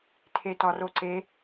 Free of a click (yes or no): no